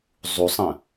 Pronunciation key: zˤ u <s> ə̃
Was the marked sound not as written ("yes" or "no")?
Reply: yes